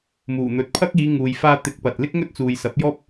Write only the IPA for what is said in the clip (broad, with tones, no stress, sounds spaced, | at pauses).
m uː˨˩ n̪ ɵ˨ t̚ pʰ ɐ˥ k̚ iː˨˧ ŋ uː˨ j f aː˧ t̪ ɪ˨˥ k̚ p ɐ˨ t̚ l ɪ˥ k̚ ŋ ɵ˥ t̚ t͡s uː˨ j s ɐ˨˥ p̚ j ɔː˥ p̚